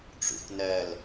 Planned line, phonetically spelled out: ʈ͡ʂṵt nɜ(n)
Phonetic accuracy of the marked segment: incorrect: l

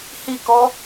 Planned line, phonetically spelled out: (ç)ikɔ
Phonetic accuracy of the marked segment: incorrect: h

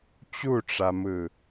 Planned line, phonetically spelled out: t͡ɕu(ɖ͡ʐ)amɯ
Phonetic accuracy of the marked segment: incorrect: ʈ͡ʂ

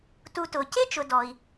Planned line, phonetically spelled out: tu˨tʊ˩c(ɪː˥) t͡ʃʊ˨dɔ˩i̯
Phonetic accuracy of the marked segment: incorrect: ɪ˥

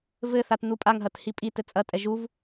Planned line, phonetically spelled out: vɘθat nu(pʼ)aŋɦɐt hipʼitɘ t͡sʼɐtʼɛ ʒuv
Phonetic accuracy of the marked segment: correct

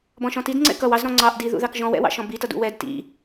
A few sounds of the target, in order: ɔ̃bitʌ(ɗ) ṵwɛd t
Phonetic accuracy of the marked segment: incorrect: d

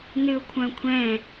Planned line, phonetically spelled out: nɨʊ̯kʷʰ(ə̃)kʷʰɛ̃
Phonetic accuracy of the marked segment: incorrect: œ̃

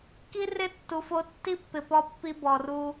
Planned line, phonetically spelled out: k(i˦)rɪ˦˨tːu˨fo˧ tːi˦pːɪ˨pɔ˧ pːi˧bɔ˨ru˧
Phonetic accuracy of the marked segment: correct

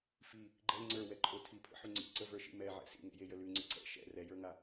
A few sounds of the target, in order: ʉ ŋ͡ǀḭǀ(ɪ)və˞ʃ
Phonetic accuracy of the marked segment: incorrect: ə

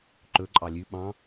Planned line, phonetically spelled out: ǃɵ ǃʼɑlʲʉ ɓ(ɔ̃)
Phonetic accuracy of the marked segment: incorrect: ɑ̃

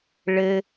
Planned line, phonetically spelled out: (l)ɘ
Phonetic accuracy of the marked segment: incorrect: ɭ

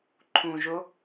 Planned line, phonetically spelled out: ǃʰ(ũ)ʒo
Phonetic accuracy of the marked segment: correct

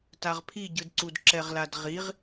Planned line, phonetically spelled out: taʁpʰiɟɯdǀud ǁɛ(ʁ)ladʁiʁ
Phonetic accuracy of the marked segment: correct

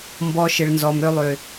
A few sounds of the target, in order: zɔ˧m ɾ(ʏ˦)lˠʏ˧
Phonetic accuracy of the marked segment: correct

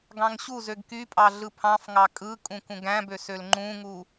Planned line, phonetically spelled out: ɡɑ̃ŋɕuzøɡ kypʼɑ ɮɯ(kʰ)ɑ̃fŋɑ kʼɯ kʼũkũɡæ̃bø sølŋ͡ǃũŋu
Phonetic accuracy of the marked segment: incorrect: pʰ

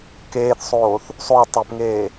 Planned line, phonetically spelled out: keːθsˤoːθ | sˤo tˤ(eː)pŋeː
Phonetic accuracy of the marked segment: incorrect: e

